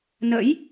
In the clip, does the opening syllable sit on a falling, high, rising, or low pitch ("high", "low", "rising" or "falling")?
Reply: rising